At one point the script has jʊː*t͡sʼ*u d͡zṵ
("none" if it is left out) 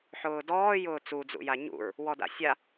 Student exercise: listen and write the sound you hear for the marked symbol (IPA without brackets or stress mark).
t͡s